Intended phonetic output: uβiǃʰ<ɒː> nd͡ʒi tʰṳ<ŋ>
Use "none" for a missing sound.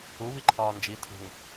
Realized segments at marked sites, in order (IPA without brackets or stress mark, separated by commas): ɒː, ŋ